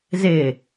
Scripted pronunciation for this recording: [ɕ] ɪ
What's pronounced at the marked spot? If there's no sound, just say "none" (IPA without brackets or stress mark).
z